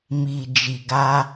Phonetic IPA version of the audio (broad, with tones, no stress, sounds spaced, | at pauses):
m i˨ d͡ʒ i˨ ɡ a˧